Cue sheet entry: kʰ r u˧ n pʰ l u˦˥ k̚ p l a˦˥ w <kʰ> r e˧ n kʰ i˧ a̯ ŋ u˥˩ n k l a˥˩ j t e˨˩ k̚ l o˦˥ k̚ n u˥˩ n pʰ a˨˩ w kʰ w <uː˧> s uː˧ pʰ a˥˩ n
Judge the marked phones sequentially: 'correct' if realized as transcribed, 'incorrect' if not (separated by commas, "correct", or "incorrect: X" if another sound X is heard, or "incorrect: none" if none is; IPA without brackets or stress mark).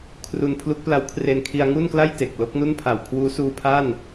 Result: correct, incorrect: uː˦˥